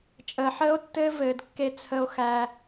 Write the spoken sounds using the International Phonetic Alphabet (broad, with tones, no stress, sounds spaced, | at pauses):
t͡ʃʼ əː˨ ħ əː˦ o̯ tː ɘː˦ v ɘː˨ d kː e˧ t͡sʰ ə˧ o̯ x æ˧